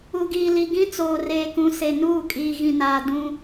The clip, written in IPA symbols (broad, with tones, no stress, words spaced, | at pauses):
u˨ɡiː˨li˨ ɡĩ˦t͡soː˨ reː˨kũ˨se˨ nuː˦˨kʼiː˨ɣĩ˨naː˨ dũ˦